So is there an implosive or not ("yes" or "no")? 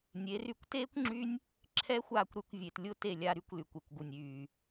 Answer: no